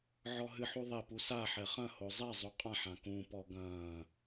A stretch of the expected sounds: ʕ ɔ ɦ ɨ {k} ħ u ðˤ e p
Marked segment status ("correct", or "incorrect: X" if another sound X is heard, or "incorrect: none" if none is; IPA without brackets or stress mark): incorrect: none